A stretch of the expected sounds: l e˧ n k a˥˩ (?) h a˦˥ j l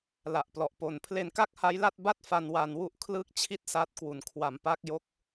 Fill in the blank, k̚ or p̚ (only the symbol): k̚